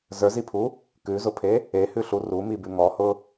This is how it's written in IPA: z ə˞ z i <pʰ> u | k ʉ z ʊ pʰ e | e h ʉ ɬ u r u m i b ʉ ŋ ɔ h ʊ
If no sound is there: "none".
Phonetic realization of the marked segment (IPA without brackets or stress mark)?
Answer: pʰ